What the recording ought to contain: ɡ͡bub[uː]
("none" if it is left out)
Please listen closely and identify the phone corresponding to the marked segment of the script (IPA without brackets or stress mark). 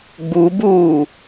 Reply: uː